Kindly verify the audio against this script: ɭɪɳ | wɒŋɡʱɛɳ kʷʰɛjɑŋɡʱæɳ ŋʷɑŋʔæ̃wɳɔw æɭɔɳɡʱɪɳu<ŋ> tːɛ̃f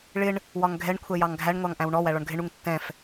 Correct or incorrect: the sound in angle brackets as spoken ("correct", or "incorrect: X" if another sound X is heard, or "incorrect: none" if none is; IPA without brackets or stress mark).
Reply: correct